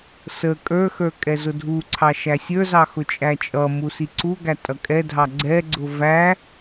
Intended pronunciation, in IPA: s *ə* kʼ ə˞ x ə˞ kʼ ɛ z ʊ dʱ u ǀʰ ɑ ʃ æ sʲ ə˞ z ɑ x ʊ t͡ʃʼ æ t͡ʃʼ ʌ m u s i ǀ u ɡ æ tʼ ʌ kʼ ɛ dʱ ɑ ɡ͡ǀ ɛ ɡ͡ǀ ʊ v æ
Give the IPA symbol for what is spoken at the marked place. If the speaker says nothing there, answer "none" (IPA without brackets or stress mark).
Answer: ə